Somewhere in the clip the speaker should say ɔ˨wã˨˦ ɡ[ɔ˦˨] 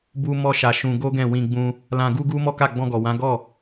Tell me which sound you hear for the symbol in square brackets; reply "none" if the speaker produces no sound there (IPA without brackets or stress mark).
ɔ˦˨